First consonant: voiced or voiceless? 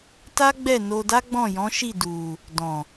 voiceless